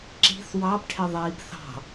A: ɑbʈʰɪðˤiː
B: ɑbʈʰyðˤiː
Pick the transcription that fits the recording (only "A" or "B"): A